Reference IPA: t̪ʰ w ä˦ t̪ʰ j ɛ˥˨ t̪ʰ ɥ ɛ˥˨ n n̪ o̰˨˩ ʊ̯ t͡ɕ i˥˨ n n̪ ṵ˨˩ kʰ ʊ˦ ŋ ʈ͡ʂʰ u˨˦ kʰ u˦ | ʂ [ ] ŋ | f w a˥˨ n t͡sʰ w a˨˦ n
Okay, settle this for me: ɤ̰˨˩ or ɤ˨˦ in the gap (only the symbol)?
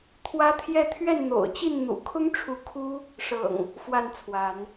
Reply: ɤ̰˨˩